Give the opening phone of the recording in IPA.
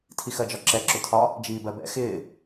tʰ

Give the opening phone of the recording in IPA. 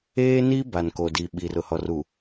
eː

